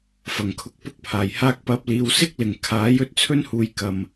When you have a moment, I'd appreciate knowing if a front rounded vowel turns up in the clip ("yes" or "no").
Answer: no